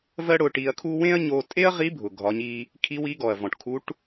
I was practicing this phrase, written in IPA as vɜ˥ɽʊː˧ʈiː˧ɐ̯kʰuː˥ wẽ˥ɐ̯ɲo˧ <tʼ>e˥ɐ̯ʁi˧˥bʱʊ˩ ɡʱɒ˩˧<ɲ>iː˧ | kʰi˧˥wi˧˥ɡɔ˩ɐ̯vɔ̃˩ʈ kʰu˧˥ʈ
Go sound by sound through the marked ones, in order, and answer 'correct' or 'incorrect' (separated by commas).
correct, correct